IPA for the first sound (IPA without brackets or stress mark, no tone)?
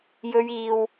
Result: j